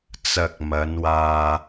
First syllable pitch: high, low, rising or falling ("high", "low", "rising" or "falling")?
low